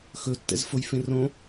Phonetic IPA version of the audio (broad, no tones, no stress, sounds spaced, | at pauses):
x ɵ tː ɛ̰ z f o j f ẽ r õ